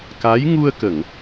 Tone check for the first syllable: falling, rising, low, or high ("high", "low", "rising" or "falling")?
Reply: rising